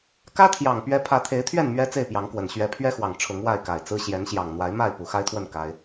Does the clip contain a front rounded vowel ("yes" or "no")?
no